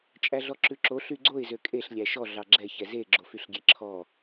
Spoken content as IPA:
t͡ʃʼæɮɔǁʉǁo ɬyɡ͡ǀoɪ̯ zøkʼeɬ lʲæʃɔ ɮɑɡ͡ǁɛ çɛze ɡ͡ǁofyɬɡʲeǁʰɔ

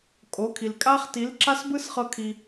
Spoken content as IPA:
kʼo˨˦kʰi˨lkʼa˦χ ti˨˦lǁa˦sbɯ˦sχɤ˧ kʰi˧

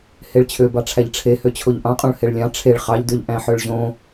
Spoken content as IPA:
heɭt͡ɕʰøbɑʈ͡ʂʰæʎ ʈ͡ʂʰehøt͡ɕʰoʎ ʔɑ̃qʼõɭ heɭlʲɑ̃ ʈ͡ʂʰeɭ χɑʎdøʎ ʔæ̃ħøɭʑõ

